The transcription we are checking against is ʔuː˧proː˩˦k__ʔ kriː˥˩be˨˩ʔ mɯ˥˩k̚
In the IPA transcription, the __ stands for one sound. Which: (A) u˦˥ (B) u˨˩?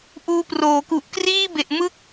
B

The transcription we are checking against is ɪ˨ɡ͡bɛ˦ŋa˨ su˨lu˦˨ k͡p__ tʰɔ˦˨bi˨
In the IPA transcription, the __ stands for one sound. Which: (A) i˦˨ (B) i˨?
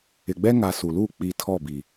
B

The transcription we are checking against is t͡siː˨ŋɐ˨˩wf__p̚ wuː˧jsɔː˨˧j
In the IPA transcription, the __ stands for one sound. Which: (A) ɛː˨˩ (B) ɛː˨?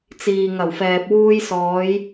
B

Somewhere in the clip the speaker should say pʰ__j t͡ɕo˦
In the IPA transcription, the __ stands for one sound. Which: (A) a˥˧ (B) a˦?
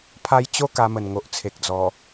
B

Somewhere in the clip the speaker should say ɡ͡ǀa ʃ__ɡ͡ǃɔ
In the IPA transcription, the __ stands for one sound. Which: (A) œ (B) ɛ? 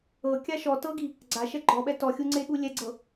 B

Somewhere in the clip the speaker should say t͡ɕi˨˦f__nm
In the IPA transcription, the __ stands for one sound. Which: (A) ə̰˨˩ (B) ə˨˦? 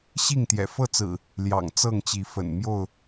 A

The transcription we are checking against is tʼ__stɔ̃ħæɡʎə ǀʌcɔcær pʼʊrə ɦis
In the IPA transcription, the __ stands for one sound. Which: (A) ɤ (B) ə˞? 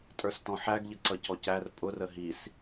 B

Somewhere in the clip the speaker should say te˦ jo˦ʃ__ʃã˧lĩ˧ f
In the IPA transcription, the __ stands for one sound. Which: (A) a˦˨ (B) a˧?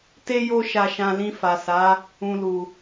B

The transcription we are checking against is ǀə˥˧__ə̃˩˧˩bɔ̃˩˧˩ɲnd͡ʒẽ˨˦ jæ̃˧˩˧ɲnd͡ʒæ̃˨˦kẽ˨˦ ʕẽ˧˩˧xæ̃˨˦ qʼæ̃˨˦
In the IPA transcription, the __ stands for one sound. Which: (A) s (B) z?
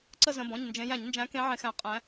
B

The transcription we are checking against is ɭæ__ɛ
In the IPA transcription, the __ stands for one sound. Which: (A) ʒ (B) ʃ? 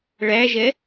A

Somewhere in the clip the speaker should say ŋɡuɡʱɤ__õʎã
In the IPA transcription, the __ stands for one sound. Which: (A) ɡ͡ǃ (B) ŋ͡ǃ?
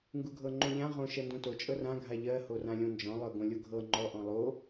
B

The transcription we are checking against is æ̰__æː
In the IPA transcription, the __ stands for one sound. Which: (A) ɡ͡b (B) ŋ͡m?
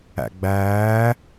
A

